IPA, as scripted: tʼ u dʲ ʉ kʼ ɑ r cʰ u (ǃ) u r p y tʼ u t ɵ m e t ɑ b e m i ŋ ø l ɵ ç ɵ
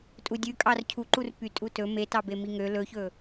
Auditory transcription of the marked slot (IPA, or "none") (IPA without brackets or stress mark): ǃ